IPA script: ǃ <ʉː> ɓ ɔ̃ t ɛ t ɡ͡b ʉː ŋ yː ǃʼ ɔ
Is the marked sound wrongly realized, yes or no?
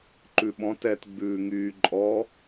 yes